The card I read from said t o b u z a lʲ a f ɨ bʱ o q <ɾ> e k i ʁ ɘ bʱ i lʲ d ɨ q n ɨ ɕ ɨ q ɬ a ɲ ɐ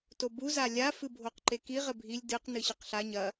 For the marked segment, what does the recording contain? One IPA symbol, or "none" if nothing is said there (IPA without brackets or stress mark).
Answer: ǃ